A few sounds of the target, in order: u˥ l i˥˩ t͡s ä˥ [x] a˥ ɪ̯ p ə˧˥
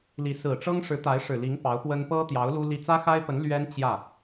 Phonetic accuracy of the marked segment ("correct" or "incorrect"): correct